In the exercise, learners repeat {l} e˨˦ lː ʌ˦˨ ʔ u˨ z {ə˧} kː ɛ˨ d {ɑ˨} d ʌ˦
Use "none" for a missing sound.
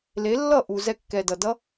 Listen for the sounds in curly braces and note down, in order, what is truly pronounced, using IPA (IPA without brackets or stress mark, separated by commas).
l, ɛ˧, ʌ˨